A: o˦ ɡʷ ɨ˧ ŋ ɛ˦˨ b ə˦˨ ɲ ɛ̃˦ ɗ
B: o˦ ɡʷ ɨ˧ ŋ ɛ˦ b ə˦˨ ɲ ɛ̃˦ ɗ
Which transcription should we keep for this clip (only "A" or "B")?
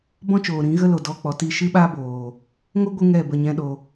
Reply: A